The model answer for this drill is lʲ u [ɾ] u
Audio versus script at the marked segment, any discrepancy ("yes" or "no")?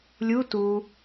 yes